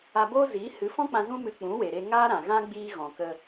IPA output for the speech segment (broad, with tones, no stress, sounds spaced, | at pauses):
a˧ b oː˦ z i˨˦ h ɨ˨˦ f ɔ̃˦ k͡p ã˧ z ũ˦ m ɨ˧ k͡p ũ˨˦ w e˨ ɾ e˧ ŋ aː˦ ɾ ã˨ ɣ ã˦ ɡ͡b iː˦ ɣ ɔ̃˨ k ə˧